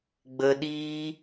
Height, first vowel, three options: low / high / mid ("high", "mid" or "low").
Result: mid